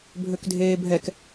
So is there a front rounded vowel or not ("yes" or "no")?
yes